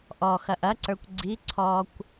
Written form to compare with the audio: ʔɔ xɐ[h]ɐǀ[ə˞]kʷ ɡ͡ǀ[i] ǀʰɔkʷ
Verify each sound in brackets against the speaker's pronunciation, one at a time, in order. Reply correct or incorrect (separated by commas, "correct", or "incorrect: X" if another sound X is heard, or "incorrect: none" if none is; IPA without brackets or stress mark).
incorrect: ʔ, correct, correct